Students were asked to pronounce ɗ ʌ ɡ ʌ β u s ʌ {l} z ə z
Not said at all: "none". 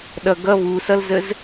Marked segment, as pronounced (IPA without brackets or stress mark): l